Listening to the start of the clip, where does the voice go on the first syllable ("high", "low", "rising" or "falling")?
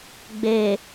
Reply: low